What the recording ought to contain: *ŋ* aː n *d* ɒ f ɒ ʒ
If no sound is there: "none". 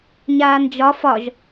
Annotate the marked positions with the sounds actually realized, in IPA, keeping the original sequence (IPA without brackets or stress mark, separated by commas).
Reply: ɲ, d͡ʒ